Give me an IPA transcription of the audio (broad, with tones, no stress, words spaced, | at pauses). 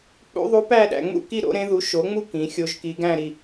k͡pṵ˧˥ðˤu˧˥pæ˥˧ɗæ̰˩˧ ŋ͡mṵ˥˧ki˥˧ ɾo̰˧˥ɾẽ˧˥ ðu˩˥ʃo˩˥ŋ͡mu˥˧ kĩ˩˥xʲo˧˥ʒki˧˥ ɡæ̃˥˧ɾi˩˧˩